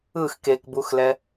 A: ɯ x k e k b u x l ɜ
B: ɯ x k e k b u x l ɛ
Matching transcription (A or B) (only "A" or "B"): B